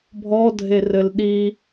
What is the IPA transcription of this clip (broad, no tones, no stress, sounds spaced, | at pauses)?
bʱ ɔ dʱ e r ɘ l ɗ i